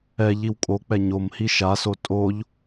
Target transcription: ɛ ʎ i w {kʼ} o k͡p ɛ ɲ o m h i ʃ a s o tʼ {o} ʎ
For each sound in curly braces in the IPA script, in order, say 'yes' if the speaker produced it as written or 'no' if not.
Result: yes, yes

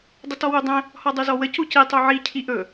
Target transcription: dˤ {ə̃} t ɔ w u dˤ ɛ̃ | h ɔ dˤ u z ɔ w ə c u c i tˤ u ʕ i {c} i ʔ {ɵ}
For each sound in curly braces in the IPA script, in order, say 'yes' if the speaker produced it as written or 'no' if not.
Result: no, no, yes

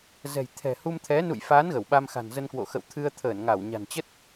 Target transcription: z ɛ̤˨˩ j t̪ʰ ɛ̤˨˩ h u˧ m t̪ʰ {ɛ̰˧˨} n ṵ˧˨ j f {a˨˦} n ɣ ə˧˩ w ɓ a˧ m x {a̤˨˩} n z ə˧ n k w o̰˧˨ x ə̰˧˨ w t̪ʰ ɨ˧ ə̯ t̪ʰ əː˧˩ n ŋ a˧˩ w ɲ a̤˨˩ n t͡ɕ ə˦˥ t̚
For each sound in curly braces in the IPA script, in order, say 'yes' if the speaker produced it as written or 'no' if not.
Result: no, no, yes

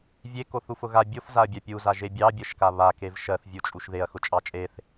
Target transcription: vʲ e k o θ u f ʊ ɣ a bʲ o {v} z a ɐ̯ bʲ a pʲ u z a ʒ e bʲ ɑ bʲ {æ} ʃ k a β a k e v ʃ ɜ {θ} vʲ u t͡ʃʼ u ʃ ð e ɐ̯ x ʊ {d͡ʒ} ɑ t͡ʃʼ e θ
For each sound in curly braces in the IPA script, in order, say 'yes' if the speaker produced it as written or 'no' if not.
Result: no, no, yes, no

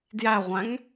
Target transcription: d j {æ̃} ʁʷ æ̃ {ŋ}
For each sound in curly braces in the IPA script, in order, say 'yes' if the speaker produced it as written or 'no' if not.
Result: no, yes

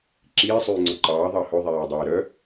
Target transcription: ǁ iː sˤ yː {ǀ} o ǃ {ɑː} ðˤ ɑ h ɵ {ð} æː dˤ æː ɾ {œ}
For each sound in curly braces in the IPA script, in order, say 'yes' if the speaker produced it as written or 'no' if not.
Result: no, yes, no, yes

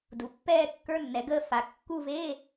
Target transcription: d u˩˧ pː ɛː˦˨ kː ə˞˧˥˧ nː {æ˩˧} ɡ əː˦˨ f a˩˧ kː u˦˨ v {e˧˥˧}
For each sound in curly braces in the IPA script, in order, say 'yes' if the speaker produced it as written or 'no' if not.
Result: no, yes

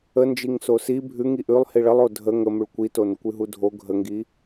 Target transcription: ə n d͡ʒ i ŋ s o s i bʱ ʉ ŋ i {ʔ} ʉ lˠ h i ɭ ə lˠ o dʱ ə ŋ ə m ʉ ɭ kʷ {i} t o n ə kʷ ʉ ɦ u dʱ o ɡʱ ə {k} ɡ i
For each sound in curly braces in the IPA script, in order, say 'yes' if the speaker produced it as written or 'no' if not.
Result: yes, yes, no

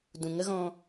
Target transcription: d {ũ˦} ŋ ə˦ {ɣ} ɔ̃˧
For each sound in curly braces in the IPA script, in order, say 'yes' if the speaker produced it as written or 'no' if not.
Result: no, yes

